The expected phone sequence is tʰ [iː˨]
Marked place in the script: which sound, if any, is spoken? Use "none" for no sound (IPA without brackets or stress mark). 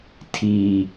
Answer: iː˨